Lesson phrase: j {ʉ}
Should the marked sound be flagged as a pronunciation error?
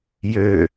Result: yes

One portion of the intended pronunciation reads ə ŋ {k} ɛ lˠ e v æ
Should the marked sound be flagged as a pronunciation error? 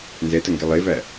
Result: yes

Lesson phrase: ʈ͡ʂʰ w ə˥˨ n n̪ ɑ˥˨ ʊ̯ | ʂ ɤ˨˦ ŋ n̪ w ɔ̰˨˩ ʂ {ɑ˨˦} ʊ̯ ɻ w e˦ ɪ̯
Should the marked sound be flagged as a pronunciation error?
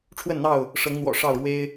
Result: yes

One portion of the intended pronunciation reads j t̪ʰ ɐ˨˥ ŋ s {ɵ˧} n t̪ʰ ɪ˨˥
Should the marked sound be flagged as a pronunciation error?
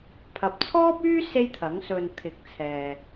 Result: yes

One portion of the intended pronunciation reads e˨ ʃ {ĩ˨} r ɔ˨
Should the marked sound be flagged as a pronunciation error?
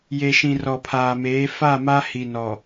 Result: no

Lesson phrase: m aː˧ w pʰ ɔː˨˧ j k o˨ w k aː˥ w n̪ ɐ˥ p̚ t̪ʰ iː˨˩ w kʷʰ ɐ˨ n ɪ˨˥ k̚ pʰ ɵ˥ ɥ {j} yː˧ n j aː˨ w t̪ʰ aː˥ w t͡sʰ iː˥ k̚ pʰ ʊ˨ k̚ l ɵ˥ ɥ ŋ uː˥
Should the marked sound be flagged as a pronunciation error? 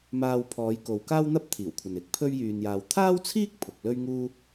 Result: no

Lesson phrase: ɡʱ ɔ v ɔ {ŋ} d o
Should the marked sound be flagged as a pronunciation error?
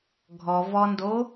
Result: yes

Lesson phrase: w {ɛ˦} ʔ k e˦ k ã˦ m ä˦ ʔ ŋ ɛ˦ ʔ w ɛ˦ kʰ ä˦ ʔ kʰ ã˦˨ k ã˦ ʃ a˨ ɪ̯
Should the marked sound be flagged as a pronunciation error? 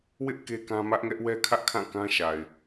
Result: yes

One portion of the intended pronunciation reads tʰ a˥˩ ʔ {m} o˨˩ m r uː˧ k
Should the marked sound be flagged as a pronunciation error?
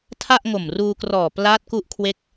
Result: yes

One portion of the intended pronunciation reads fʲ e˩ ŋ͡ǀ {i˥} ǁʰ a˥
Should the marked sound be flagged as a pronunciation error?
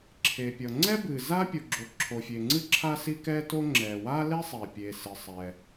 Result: yes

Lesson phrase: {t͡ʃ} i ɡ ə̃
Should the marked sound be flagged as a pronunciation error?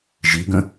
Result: yes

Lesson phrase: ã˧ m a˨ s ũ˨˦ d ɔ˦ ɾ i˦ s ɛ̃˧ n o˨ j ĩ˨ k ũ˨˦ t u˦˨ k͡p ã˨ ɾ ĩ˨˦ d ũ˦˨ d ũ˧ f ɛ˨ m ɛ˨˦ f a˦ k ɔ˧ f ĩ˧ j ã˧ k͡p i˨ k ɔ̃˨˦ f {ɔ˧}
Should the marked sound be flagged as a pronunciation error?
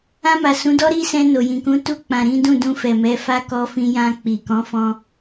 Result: yes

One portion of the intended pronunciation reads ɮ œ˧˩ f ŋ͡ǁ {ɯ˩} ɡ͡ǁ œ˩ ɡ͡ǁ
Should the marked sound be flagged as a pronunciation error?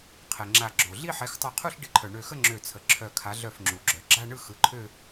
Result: yes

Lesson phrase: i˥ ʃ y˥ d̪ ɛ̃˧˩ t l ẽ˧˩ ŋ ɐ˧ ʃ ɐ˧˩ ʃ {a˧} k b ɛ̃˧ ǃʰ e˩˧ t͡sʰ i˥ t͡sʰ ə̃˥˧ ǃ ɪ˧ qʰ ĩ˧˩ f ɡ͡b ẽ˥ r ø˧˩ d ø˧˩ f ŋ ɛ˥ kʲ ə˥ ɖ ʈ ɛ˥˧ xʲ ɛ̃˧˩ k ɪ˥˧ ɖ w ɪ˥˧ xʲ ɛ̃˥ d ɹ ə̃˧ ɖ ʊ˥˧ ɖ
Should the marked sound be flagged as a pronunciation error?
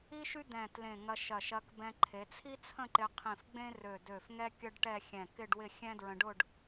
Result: yes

